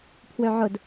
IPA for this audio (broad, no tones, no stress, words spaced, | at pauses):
pʰwøʕʊd